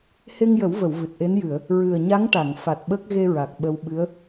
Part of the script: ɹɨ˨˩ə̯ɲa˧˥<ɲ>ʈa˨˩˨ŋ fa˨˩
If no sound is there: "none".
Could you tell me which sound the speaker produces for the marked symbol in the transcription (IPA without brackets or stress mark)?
ŋ